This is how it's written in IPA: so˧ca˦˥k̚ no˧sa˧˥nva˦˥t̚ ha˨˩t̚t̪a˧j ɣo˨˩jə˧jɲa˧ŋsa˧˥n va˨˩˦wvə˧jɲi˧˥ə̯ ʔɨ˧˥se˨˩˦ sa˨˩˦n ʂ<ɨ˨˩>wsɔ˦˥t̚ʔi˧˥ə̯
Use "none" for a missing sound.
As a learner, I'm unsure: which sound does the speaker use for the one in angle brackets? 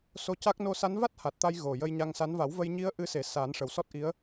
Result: ə˨˩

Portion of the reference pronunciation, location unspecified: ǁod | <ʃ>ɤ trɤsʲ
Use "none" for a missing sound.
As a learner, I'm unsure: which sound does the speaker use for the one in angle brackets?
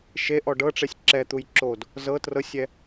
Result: z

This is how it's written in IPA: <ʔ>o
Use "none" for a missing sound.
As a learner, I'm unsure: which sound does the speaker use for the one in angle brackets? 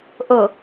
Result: ʔ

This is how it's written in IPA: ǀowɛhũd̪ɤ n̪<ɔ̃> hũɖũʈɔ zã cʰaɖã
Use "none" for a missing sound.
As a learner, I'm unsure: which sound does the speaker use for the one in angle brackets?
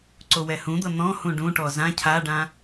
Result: ɔ̃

